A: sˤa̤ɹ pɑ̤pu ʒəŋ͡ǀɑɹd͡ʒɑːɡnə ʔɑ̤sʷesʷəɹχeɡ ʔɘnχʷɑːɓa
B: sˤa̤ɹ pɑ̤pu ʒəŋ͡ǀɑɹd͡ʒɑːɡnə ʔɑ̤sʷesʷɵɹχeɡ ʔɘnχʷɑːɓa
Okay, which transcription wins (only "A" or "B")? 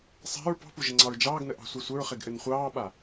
A